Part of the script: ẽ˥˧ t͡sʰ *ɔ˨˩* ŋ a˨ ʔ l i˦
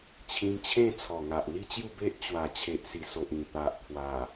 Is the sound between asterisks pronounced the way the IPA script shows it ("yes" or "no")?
yes